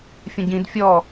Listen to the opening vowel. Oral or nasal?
nasal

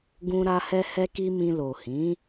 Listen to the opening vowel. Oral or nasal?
nasal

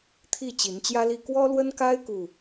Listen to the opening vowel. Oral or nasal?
oral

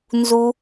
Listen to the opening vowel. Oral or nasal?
oral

